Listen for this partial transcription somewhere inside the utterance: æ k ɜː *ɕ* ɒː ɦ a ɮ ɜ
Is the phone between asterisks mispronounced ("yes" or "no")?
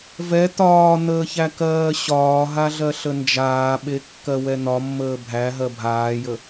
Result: no